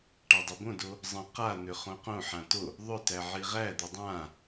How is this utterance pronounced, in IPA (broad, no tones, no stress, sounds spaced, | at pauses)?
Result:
ʈ a dˤ o b õ d o | zˤ ə̃ q a n̪ ʏ χ õ q õ ħ ã t o | ðˤ ʏ t æ ʕ i ʁ æ d̪ ʏ dˤ ã